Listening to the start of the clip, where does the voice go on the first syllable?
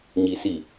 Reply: high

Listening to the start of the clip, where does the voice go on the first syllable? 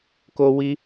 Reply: high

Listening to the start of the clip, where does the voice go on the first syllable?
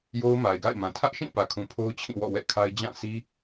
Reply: high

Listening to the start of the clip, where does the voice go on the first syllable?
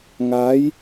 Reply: rising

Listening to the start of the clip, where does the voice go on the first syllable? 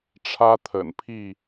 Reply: high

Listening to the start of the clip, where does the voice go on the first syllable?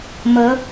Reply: rising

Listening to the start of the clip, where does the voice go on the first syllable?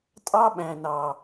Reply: high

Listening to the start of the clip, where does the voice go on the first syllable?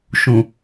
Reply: low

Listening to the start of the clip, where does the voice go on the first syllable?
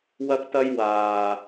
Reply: high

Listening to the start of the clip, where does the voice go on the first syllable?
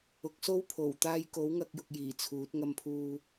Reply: rising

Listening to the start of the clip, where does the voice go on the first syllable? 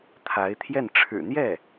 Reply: rising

